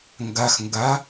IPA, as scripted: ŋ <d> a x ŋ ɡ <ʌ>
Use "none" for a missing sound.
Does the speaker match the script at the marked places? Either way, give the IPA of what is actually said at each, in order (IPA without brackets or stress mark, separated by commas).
ɡ, a